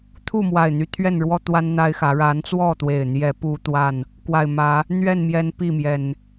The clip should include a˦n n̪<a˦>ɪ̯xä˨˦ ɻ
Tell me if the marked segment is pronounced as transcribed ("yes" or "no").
yes